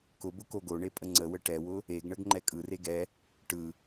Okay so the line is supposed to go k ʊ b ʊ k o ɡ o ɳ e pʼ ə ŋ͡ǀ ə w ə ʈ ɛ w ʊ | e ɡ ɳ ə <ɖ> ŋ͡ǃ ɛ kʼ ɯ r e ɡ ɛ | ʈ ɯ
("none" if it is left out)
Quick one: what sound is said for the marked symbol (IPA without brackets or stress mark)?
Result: ɡ